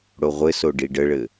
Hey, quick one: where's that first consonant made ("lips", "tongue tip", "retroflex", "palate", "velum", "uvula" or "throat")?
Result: retroflex